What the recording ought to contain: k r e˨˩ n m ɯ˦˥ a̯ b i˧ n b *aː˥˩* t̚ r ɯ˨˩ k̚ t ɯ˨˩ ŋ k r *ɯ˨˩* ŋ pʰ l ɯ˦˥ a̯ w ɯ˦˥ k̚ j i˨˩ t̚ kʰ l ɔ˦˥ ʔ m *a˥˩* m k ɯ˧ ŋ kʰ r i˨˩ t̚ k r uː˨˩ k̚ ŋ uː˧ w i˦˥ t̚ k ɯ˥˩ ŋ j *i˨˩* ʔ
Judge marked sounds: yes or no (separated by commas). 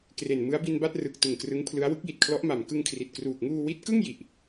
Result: no, no, no, yes